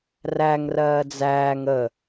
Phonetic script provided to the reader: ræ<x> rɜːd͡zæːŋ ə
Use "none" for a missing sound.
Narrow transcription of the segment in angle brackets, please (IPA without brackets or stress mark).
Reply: ŋ